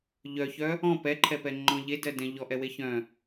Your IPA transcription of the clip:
ʎ œ ç œ | ɔ̃ p ɛ ǃʰ ɛ p ɛ ŋ͡ǃ ɔ̃ ʎ e d ɜ d ɛ̃ ʎ ɔ ʔ ɛ w e ç œ̃

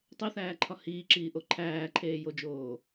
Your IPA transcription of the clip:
tˤ e θ æː ǃʰ ɒ h iː ǁ iː ʔ o ǃʰ æː ǃʰ eː j o d͡ʒ oː

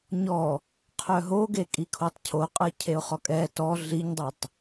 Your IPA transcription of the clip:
ɲ ɔ | qʰ œ ɦ o ɡ e kʼ i kʰ o tˤ cʰ o qʼ ɐ cʰ e ʊ̯ χ ɔ kʼ ɛ t ɔ ɮ i ɲ dˤ e tˤ

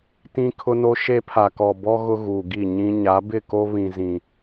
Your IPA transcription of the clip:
t ĩ˦ kʰ ʊ˦ n o˦ ʃ e˦ pʰ a˨ k ɔ˨ b ɔ˦ ɣ ʊ˦ ɣ uː˨ ɡ i˦˨ ɲ ĩ˦ ɲ a˨˦ b ɪ˦˨ k o˦ β ĩ˨ z ĩ˨

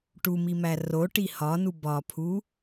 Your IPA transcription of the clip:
ʈ u m i m æ r o ʈ i h ɒ n u b ɒ pʰ u

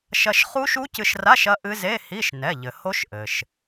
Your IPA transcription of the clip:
ʃ ɐ˧ ʃ χ u˦˥ ʃ u˦˥ c ɨ˧ ʃ r a˧˥˧ ʃ ɐ˦˥ ʔ ɨ˦˥ z e˧˥˧ h i˧˥˧ ʃ n ɛ˩˧˩ ʎ ɘ˩ h o˦˥ ʃ ʔ ɘ˩ ʃ

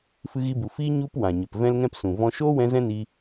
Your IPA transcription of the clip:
f ɨ˧ ɣ i˧ b u˨ f iː˦ ɲ u˦ p w ã˨ ɲ ə˨ p v ɛ̃˦ l ŋ ɛ̃˦ p s ũ˨ v ɔ̃˧ ʃ oː˦ w ɛ̃˧ z ɛ̃˦ n i˧

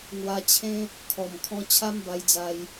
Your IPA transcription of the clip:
ŋ w a˧ t͡ɕʰ ẽ˦ | kʰ ɔ˨˩ m kʰ ɔ̃˧ t͡ɕʰ a˦ m b a˧ j d͡z a˧ j

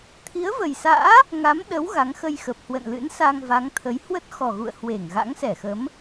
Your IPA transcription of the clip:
t̪ʰ i˨˦ ə̯ v ə˨˩ j s a̰ː˧˥ | ŋ a˨˦ m ɗ ə˨˦ w ɣ a˨˦ ŋ x ə˧ j x ə˨˩ p̚ h w ə̰˧˨ n l ɨ̰˧˥ n s a˧ ŋ v a˨˦ ŋ t̪ʰ ə˨˦ j h w ə˦˥ t̚ x ɔ˨˩ ɣ ṵ˧˨ ə̯ h w e˧˩ ŋ ɣ a̰˧˥ ŋ s ɛ˧˩ x ə˨˦ m

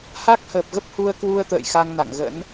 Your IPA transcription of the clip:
h a˦˥ k̚ h əː˨˩ p̚ ɣ ə˦˥ p̚ h u˧ ə̯ k w u˧ ə̯ t̪ ə̰ː˧˨ j x a˧ ŋ n a̰˧˨ ŋ ɣ ə̰˧˥ n

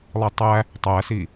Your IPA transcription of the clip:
lˠ i tˤ æ | tˤ æ s i

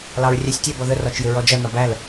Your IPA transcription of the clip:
l ɑ ɹ rʲ æ sʲ tʲ ɛ b ɔ ð ə r ɒ t͡ʃ j ɪ ɹ ɔ d͡ʒ ʌ n ɒ b æ l

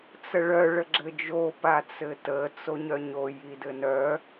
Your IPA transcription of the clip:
t͡s ə ɭ œ ɭ ə ɡ͡ǁ ɘ d͡ʒ o p a t͡s ɘ t ə t͡s o ɲ œ ɲ o j i d ɘ n œ

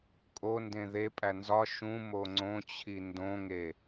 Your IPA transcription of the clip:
kʼ o n d ẽ ð e pʼ æ n z ɒ ʃ ũ m o ŋ͡ǀ õ t͡ɕʰ i n d õ ŋ e

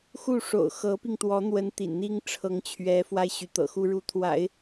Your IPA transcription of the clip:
x u˥˩ ʂ o̰˨˩ ʊ̯ x ɤ˧˥ p i˧ ŋ t̪ w ɔ˧˥ n̪ w ə˧˥ n t̪ ḭ˨˩ n n̪ i˥ ŋ ʈ͡ʂʰ ɤ˧˥ ŋ t͡ɕʰ ɥ ɛ˧˥ f w a˥ ɪ̯ ɕ y˧˥ t̪ ɤ̰˨˩ x u˥ ɻ u˧˥ t̪ʰ w a̰˨˩˦ ɪ̯

